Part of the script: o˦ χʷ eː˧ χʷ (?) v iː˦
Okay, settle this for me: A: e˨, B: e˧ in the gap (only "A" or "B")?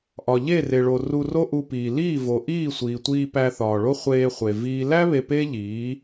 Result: A